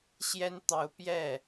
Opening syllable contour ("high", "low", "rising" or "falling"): high